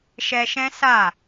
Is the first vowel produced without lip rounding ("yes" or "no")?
yes